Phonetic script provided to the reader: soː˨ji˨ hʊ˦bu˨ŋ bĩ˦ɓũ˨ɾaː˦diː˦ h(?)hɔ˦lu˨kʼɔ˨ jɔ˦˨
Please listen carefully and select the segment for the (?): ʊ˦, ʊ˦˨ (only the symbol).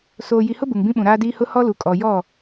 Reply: ʊ˦